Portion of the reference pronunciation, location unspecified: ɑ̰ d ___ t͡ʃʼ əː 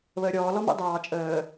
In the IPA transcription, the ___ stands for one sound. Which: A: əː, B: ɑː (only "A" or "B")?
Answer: B